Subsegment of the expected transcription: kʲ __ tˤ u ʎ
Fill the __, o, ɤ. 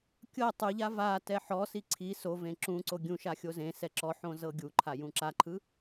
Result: ɤ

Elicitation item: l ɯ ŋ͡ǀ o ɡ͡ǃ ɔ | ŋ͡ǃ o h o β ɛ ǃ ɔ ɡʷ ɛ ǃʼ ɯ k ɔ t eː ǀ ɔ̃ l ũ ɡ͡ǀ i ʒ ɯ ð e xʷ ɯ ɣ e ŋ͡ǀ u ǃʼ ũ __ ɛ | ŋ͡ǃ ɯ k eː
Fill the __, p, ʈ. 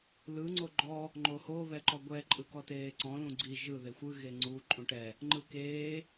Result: ʈ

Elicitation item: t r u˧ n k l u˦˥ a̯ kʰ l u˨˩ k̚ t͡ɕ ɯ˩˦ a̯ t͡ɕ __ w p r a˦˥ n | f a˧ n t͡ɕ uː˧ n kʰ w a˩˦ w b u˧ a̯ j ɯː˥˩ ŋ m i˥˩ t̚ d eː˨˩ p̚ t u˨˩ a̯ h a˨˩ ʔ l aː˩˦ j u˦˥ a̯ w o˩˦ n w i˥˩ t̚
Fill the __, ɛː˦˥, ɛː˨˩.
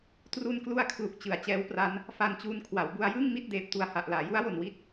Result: ɛː˦˥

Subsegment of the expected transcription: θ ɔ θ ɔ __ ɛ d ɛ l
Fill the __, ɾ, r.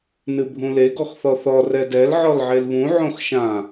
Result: r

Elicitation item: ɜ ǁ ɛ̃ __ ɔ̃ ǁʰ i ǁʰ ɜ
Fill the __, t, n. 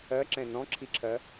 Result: n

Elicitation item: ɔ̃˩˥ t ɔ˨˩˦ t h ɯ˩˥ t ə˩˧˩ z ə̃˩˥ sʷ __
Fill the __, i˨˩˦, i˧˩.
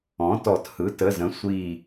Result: i˧˩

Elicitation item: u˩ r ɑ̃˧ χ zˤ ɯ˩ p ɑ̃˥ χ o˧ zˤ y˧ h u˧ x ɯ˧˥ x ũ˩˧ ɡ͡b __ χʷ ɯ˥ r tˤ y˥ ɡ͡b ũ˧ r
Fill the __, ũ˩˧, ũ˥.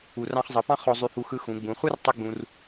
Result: ũ˩˧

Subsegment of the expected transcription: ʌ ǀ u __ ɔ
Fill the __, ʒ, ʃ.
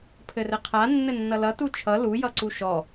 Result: ʃ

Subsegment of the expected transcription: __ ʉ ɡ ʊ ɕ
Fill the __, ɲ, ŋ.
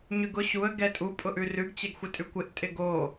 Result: ɲ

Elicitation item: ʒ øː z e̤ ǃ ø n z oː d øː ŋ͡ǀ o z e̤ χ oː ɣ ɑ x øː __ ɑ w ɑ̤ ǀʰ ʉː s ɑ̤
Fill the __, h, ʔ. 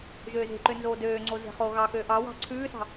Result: ʔ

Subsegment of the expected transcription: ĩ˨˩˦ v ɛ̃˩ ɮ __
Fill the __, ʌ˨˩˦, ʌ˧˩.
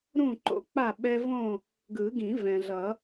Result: ʌ˨˩˦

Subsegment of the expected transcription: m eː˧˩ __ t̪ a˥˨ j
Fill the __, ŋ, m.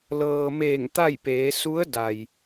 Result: ŋ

